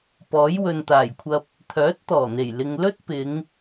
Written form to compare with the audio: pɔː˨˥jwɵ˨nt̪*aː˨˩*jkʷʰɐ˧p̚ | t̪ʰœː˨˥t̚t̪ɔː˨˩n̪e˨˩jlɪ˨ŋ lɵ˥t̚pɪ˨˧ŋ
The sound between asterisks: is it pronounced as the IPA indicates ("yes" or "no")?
yes